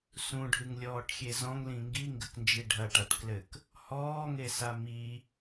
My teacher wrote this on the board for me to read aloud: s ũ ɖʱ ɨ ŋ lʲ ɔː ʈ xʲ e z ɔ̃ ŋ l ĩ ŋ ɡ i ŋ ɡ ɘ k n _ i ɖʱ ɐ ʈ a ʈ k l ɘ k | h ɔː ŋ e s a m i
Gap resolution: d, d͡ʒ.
d͡ʒ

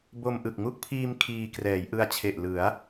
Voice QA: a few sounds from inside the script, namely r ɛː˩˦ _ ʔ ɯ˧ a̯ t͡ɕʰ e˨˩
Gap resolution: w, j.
j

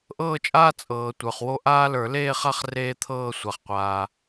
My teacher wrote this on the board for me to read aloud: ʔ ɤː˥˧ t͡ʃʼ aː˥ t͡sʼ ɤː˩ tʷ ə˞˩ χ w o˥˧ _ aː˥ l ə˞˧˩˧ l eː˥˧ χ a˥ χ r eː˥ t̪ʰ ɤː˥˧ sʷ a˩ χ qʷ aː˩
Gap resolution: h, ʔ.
ʔ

